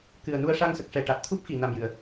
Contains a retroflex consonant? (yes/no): yes